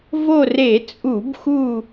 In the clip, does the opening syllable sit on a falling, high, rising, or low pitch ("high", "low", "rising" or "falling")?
falling